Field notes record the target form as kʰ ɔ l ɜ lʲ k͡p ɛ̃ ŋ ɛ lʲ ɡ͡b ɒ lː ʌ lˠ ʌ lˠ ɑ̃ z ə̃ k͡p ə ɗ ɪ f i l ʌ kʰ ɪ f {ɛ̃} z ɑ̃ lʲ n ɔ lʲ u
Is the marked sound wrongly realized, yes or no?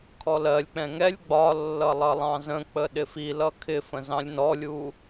yes